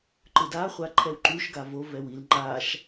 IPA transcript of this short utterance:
ǃ ɯ d a χʷ a ǃʰ ɛ w ǃ u ʃ ɡ a v o v ɛ w i l ŋ͡ǃ a ʃ

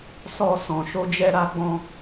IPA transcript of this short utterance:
s ɔ˧ s ɔ̃˨ ʃ o˧ d͡ʒ ɛ˧ ɾ a˧ ɡ͡b ɔ̃˧

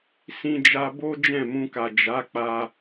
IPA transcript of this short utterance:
s ĩ˦ d͡ʒ a˦ b o˦ d͡ʒ ɛ̃˦˨ m ũ˧ k a˨ d͡ʒ a˨˦ k͡p a˧

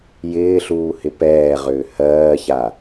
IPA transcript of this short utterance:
j ɪː ɬ uː h ɪ p ɛː ʁ ʏː h ɜː ç a

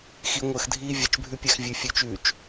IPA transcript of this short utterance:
x i ŋʷ əː x dʱ iː vʲ ɛ t͡ʃ bʱ ʉ pʲ æ x vʲ ʉ fʲ ʉ t͡ʃ ʉː t͡ʃ

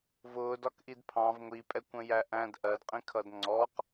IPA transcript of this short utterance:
v ʊː d ɒ k ʔ i d pʰ ɑ̃ v ŋʷ i pʼ ɛ kʷ ə̃ j æ ʔ æ̃ d ʔ ɜ d qʼ ĩ kʰ ʌ d ŋ͡ǀ ɔ q

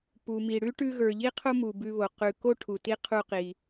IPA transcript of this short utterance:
p u˩ m i˩ ɽ ʉ˥ ʈ ʉ˧ ɣ ə˞˩ ʎ i˥ qʰ o˥ m u˩ b ʉ˧ β o˩ q ʉ˩ k o˥ ʈʰ u˩ t i˥ qʰ u˧ q i˩

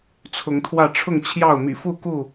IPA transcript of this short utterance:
t͡sʰ ʊ˨˦ ŋ t̪ʰ w ä˥˨ ʈ͡ʂʰ ʊ˥˨ ŋ t͡ɕʰ j ɑ˥˨ ʊ̯ m ḭ˨˩ f u˥˨ k u˥˨

